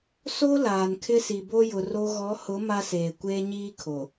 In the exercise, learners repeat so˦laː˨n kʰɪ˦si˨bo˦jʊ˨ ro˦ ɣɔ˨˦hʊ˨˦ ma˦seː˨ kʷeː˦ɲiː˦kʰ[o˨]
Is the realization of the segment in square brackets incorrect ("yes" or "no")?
no